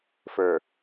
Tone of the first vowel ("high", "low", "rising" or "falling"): low